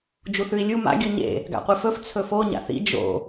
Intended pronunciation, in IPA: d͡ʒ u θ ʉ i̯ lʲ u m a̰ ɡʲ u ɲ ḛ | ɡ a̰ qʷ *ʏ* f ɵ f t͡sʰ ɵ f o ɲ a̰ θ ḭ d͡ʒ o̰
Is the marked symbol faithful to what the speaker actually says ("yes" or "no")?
no